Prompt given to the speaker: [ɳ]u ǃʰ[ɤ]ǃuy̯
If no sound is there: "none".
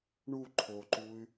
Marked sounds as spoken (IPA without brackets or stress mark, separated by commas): ɳ, o